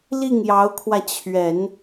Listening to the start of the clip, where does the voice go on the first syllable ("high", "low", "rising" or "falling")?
falling